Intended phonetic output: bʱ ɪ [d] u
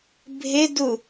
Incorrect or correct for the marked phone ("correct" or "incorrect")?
correct